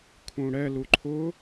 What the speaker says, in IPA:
kʰ ũ ɽ ɛ l u ǃʰ ʊ

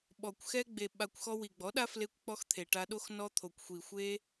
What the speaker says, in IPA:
ɓ ɔ˨ kʷ x ɛ˦ ɡ͡b e˨ ɓ a˧ kʷ x ɔ˧ w i˨ ɡ͡b ɔ˨˦ ɗ a˦ f l e˧ kʷ k͡p ɔ˧ x t̪ʰ e˨ ʈ a˧ ɗ o˦ x n ɔ˦ t̪ʰ o˨ kʷ xʷ i˨ xʷ e˦

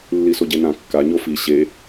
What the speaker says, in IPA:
lː i s o ɟ e n ã kː a ɲ o f i ɕ e

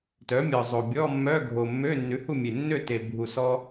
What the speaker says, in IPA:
t œ˩˥ mʲ ɔ˨˩ zˤ o˨˩ bʲ ɔ˧˥˧ mː œ˧˥˧ ɡʱ o˨˩ mː ø˧˥˧ nː ʉ˩˥ h u˥˨ mʲ e˨˩ nː ø˥˨ t e˨˩ bʱ u˨˩ s ɔ˧

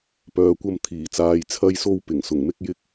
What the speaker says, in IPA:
p œː˨ kʷ ɐ˧ m t̪ʰ iː˨˩ t͡s aː˨ j t͡sʰ ɐ˧ j s o˧ w p ɪ˨˩ ŋ s ʊ˨˩ ŋ m ɪ˥ k̚ j ɪ˥ k̚

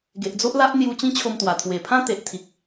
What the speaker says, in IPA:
ɡ e˨ ʔ d͡z o˦ ʔ l a˦ ʔ n̪ j u˧ t͡ɕ ĩ˦ t͡ɕʰ o˧ m t̪ w a˨˩ t̪ʰ w e˨˩ pʰ ã˦ t̪ e˨ ʔ t̪ʰ i˨ k̚

